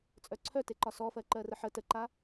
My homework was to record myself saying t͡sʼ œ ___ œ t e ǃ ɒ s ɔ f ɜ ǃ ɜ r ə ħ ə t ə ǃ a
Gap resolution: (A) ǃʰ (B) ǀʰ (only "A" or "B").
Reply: B